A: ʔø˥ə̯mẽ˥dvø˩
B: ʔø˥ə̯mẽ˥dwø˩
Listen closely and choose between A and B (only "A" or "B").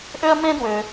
B